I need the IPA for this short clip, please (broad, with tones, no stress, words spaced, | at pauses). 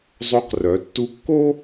zˤo˦qrœ˨˦tːu˦ kːo˦